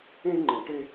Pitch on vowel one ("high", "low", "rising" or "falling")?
high